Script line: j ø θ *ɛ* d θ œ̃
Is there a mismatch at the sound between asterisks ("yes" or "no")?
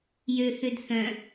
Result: yes